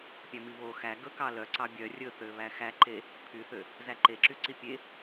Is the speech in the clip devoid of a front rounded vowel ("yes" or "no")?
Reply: no